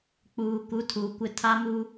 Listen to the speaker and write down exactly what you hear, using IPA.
k͡p uː˨ k u˨˦ tʰ uː˨ kʷ ɪ˦ tʰ a˦ m u˦

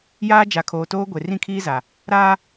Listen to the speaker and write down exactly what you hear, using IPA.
j aː˦ d͡ʒ a˨ kʰ oː˨ t oː˦ ɡʷ e˨ r ĩ˦ kʰ iː˦ z a˨ | ɾ aː˦

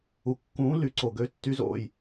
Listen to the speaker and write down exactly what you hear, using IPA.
u˩ kː ũː˨˥ l y˩ ǀ o˩ ɡ ø˨˥ tː y˨˥ z o̰˩ j

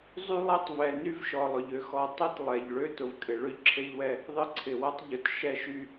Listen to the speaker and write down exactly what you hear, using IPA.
zˤ y˦ lˠ e˦ tˤ v ɛ˨ n y˦ v ʃ ɔ˨ lˠ ʊ˨ ʎ ø˦ x ɔ˨ tˤ ɛ˦ t lˠ ɛ˨ ʎ ɭ ø˦ t ʊ˨ v kʼ ɪ˨ ɭ ø˦ ʎ ǁʰ e˦ ʎ w ɛ˦ | ðˤ ɪ˦˨ ǀʰ ɪ˨ w ɐ˦ tˤ ʎ ʊ˨ t ʃ ɛ˦ ʃ y˦

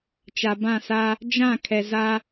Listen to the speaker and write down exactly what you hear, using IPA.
t͡ʃ a˨ b ã˦˨ s a˦ | d͡ʒ ã˦˨ kʰ ɛ˨ z a˦

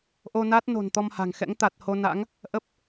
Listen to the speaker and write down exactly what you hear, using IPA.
ʔ o˧ n a˦˥ t̚ n o̤˨˩ n t̪ ɔ˧ m h a̤˨˩ ŋ x ɛ̰˧˥ ŋ t̪ a˨˩ t̚ h o˧ n a̰˧˥ ŋ | ʔ ə˦˥ p̚

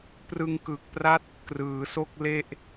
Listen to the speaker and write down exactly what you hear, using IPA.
p r ɯ˧ ŋ k ɯ˨˩ k̚ p r a˦˥ t̚ | k r ɯː˩˦ s o˥˩ k̚ l e˥˩ ʔ

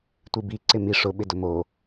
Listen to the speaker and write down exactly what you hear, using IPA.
tʷ i b i ǀ ɪ m i ʂ ʊ ɓ ɪ d ʊ m o

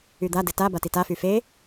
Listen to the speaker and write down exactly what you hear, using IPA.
y d̪ a d ɘ t a b a t i t a f y f e

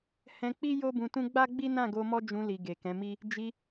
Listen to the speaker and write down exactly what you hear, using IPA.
h ɛ̃˧ k͡p i˦ j o˦ b ũ˧ t ũ˦ ɡ͡b a˦ ɡ͡b i˦ n ã˦˨ ɡ o˧ m ɔ˦ d͡ʒ ũ˧ l i˨ ɡ e˨ k ɛ̃˨˦ m i˦ | d͡ʒ i˧

